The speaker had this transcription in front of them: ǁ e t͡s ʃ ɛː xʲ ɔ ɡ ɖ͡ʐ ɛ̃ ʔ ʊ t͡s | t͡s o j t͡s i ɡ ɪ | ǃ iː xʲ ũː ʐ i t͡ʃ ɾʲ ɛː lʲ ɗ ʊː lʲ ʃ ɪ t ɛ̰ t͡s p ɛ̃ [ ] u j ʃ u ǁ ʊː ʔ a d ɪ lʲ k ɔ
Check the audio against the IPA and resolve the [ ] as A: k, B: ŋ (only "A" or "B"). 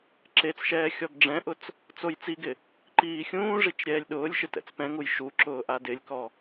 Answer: B